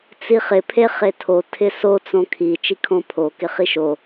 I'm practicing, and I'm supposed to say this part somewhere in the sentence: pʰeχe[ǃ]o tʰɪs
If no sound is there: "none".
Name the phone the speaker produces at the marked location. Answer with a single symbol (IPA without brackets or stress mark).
tʰ